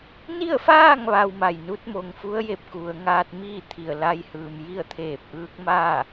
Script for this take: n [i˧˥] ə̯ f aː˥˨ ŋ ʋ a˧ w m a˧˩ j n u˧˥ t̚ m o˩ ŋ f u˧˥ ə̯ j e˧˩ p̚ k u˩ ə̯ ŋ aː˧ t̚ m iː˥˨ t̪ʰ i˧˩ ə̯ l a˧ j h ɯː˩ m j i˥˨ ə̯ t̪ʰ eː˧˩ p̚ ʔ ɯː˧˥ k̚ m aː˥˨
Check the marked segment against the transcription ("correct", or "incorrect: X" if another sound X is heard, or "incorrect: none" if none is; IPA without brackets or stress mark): incorrect: i˥˨